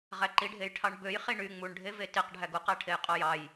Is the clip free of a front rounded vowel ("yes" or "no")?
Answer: no